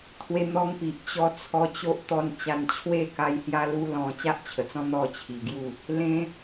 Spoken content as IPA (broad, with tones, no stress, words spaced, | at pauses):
t̪ʰwe˧n̪ɔ˧ŋpi˨ʔ t͡ɕɔ˧t͡sʰɔ˧ t͡ɕo˦ʔ t̪ɔ˦nt͡ɕa˧n t͡ɕʰwe˥˧ka˧j hja˦lu˦lɔ̃˧ t͡ɕa˦ʔt͡ɕʰə˨˩t͡sɔ̃˦ n̪ɔ˥˧t͡ɕʰi˨˩ɡju˥˧ | lẽ˧